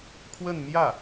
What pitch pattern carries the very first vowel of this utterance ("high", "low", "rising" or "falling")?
falling